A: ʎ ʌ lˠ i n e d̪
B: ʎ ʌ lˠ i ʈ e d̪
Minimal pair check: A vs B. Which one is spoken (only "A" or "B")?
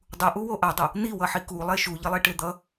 B